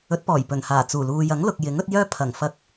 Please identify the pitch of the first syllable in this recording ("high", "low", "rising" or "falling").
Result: rising